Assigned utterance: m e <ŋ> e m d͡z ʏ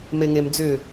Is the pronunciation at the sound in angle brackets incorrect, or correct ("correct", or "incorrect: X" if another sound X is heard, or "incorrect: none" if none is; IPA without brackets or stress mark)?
correct